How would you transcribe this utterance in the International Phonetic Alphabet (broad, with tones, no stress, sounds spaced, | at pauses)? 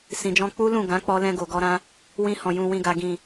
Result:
s ĩ˨ d͡ʒ ɔ̃˧ k͡p u˦ l ũ˦˨ ɡ ã˨˦ k͡p ɔ˧ l ɛ̃˧ ɡ o˨ ɡ ɔ˧ ɾ ã˦ | w ĩ˧ h ɔ̃˨ j ũ˨ w ĩ˨ ɡ a˨ ɡ ĩ˨